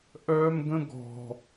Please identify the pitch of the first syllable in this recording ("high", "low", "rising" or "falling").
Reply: high